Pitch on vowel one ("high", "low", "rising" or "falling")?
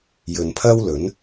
low